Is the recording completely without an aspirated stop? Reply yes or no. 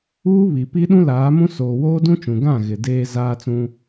yes